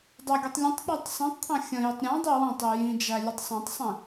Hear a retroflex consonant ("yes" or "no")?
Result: no